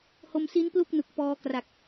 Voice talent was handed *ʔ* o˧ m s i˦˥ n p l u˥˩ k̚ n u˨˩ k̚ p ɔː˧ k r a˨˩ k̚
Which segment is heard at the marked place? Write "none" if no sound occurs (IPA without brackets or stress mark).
h